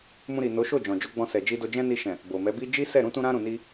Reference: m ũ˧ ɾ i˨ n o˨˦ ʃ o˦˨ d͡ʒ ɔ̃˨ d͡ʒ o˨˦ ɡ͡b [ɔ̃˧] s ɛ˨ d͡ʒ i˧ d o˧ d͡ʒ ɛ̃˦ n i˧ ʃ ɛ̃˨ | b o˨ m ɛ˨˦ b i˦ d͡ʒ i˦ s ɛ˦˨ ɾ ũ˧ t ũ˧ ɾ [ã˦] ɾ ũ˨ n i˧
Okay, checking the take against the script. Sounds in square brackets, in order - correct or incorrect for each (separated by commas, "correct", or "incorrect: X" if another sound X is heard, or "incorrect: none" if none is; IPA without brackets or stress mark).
correct, incorrect: ã˧